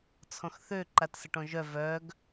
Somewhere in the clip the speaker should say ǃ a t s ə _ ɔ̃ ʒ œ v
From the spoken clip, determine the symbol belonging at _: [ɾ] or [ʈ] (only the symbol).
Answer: ʈ